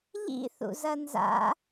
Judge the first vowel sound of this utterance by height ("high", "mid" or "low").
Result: high